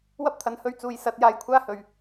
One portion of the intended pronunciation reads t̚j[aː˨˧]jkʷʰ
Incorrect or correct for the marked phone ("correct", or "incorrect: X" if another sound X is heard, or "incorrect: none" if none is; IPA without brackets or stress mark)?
incorrect: aː˧